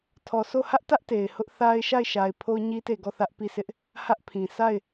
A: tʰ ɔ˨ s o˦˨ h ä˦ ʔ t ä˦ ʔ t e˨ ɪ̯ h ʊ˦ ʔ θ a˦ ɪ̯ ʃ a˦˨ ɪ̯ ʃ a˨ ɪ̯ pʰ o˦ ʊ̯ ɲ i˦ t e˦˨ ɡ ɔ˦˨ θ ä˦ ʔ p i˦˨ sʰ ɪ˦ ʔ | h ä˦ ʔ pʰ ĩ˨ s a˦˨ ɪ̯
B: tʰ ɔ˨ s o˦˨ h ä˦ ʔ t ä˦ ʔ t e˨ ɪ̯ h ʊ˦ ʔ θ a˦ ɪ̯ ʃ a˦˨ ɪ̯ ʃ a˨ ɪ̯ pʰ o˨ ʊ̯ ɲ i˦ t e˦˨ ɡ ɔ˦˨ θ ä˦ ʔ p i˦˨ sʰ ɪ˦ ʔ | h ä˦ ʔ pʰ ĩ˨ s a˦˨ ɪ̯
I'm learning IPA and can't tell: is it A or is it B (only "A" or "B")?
A